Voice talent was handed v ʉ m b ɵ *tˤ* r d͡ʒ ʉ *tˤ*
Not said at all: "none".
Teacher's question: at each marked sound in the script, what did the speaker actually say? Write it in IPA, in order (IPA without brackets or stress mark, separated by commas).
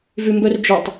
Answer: none, tˤ